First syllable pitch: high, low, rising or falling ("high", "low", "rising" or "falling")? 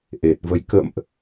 low